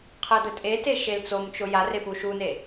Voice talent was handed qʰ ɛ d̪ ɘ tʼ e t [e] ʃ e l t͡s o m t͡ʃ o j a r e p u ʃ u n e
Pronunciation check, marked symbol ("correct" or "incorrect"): correct